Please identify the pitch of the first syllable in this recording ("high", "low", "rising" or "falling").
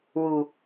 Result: low